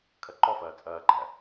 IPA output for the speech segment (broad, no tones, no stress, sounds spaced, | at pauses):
kʰ ɐ ǃ ɔ f ɐː t͡sʼ ɐː ɡ͡ǃ æ